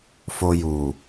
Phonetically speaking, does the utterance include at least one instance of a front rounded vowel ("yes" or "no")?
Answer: no